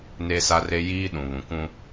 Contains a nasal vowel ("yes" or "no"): yes